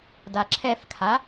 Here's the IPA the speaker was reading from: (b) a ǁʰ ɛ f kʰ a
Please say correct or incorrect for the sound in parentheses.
incorrect